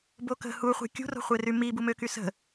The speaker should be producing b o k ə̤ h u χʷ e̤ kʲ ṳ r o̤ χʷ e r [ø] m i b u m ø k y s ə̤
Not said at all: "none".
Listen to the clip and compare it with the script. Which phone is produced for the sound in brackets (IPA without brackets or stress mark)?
y